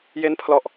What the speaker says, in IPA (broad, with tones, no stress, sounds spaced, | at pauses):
j e˦˥ n pʰ l ɔ˨˩ ʔ